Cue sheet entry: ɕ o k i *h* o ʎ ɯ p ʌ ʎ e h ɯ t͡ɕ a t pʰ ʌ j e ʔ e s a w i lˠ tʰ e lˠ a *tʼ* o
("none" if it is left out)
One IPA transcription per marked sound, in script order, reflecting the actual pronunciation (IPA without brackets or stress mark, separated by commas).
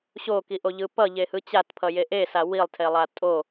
ʔ, tʼ